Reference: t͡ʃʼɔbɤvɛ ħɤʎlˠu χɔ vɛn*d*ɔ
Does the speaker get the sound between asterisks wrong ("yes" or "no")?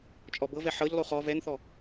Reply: yes